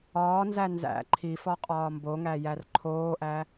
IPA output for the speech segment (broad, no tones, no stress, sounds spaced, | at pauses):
ɒː n z æ n z æ̰ ǃʰ i f ɒ qʼ ɒː m b o ŋ æ j æ r ǃʰ oː ʔ æ